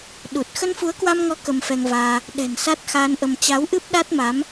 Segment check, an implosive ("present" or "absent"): present